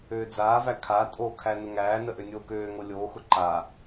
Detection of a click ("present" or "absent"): present